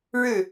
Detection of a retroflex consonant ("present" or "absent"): present